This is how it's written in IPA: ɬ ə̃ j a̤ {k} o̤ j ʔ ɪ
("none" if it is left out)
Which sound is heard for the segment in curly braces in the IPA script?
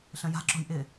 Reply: ǁ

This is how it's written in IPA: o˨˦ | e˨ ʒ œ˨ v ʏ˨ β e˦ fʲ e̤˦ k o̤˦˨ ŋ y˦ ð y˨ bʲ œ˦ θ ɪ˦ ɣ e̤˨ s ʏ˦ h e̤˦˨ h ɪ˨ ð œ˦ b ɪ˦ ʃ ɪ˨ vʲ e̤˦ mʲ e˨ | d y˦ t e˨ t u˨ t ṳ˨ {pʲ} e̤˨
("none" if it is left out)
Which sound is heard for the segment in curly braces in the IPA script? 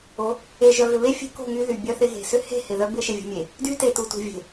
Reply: vʲ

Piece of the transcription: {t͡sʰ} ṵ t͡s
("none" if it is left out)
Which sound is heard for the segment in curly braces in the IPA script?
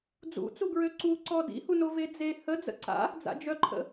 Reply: d͡z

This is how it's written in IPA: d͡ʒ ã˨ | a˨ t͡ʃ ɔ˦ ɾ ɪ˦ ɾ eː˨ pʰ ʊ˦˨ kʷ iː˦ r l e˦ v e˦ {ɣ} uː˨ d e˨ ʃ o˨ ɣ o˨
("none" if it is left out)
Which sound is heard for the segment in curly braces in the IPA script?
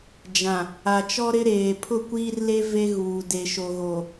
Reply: ɣ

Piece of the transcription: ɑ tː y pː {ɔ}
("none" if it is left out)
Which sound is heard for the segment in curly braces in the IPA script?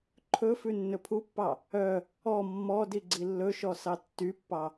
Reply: ɑ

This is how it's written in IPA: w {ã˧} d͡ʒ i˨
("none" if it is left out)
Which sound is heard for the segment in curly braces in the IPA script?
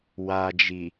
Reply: a˧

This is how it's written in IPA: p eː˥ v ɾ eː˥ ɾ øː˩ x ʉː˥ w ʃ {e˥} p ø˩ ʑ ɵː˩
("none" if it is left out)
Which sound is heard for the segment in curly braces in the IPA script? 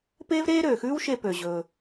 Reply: e˧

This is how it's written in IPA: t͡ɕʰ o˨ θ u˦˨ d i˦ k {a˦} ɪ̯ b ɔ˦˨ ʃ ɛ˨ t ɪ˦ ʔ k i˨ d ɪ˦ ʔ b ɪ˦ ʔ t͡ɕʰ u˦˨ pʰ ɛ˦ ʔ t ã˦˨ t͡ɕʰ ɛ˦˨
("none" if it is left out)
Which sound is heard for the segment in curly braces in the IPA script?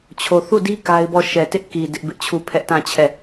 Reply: a˦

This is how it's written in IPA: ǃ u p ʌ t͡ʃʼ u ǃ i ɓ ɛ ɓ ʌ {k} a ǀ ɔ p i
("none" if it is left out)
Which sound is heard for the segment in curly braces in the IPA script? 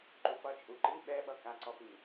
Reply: k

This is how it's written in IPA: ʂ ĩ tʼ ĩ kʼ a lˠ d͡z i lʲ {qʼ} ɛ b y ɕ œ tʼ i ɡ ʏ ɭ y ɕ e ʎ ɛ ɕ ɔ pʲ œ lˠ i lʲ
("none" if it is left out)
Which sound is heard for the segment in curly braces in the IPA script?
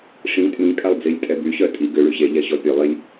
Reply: tʼ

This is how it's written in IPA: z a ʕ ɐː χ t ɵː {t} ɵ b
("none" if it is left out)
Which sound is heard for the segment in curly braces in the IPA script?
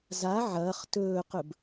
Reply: q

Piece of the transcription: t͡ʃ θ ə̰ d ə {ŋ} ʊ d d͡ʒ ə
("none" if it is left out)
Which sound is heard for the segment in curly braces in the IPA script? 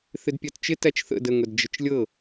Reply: ŋ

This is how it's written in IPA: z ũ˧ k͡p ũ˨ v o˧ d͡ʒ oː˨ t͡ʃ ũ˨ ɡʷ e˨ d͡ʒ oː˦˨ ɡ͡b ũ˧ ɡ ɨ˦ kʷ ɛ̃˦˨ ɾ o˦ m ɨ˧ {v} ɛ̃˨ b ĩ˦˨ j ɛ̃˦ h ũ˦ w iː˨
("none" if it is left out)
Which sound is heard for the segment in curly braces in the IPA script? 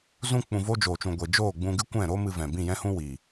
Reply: v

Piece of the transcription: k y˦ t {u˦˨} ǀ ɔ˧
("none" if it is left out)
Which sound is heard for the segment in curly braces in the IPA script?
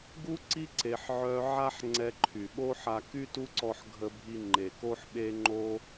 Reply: u˦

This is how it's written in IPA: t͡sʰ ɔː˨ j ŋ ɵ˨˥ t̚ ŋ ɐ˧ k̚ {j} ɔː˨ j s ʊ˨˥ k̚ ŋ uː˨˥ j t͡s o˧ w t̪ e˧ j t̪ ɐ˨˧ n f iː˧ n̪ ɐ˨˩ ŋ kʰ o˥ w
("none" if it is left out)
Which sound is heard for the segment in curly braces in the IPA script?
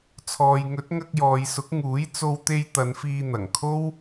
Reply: j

